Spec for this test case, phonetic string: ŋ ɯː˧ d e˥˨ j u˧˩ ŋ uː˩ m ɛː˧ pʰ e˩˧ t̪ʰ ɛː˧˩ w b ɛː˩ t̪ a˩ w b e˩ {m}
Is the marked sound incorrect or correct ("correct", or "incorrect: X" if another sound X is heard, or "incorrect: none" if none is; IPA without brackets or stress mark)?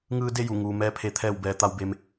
correct